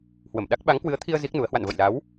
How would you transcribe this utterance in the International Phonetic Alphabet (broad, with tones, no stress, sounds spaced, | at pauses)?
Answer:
h w ə˧˩ m ɗ a˦˥ k̚ ɓ a˨˦ ŋ k w ɨ˨˦ ə̯ t̪ʰ i˧ ə̯ z i˦˥ k̚ n u˨˦ ə̯ h w a̰˧˨ n v ə̰˧˨ j l a˨˦ w